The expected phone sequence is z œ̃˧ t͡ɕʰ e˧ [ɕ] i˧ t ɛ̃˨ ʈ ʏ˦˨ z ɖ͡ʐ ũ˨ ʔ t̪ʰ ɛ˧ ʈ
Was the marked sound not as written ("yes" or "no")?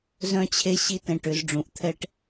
no